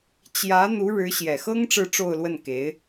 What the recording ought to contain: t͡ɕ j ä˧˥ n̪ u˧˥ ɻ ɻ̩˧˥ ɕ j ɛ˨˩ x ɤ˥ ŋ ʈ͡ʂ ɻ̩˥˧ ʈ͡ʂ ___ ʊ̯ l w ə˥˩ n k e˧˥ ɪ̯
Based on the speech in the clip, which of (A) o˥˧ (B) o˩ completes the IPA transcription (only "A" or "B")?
A